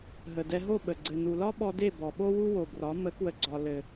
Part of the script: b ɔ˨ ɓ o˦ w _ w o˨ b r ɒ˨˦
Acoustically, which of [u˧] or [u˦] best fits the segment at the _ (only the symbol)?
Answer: u˦